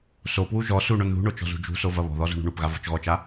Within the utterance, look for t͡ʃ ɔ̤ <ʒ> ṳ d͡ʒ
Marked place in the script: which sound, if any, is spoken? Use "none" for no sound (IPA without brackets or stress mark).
z